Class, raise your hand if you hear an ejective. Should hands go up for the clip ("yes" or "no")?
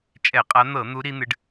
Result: yes